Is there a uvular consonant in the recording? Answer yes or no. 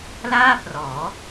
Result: no